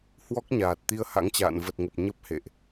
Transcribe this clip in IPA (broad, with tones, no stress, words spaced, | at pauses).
hwɔ˦˥k̚ ɲaː˨˩t̚t̪i˧ə̯ha̰˧˥ŋt͡ɕa̰ː˧˨n və˨˩t̚ŋə˨˩p̚ ɲə˦˥p̚hḛ˧˨ʔ